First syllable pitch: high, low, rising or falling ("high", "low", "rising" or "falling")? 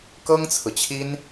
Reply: high